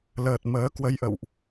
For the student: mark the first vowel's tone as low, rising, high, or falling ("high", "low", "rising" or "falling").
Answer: low